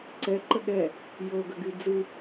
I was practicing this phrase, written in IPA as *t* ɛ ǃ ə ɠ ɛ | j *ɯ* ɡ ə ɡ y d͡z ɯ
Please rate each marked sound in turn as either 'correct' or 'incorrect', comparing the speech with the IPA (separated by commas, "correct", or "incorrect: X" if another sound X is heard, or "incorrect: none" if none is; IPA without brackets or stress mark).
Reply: incorrect: ǀ, incorrect: ɤ